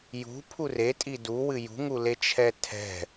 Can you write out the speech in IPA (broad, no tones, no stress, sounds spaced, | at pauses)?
j ṳ pʰ u r e tʼ i d u w ɨ j ṳ ŋ u l e t͡ʃʰ ɛ tʰ ɛ̤